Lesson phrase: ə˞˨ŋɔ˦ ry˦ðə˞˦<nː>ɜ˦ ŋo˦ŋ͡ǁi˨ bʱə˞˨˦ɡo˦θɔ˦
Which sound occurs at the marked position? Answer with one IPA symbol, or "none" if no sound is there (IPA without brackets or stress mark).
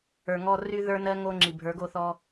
n